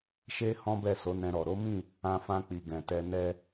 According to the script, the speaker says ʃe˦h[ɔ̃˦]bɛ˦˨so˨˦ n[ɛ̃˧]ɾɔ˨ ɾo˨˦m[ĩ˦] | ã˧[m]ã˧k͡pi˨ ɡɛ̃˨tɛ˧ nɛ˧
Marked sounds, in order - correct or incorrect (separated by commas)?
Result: correct, correct, incorrect, incorrect